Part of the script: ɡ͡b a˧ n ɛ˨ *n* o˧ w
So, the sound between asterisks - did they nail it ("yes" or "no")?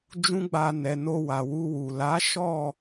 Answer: yes